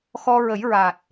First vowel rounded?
yes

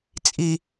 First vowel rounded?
no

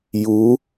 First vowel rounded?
yes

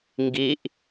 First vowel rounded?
no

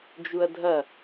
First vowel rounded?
yes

